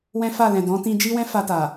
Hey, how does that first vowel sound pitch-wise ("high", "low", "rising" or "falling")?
high